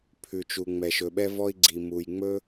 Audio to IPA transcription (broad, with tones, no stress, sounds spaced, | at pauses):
pʰ ʉ˩ t͡ʃ u˩ ŋ͡m ɛ˩ ʃ ɵ˩ ɓ ɛ˥ v ɔ˥ i̯ ɡ͡ǀ i˩ m u˩ j ŋ͡m ɵ˥